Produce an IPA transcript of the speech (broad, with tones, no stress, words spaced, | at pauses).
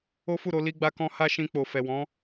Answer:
o˦fu˦˨ɾo˨˦ li˦ɡ͡ba˦kɔ̃˦ ha˦ʃĩ˧k͡po˨ fɛ˨wɔ̃˨˦